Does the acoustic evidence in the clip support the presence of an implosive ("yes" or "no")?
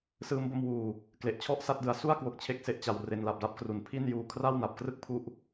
no